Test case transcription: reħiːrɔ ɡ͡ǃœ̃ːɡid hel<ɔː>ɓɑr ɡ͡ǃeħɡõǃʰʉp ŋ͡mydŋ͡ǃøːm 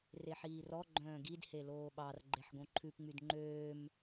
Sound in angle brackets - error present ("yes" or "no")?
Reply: yes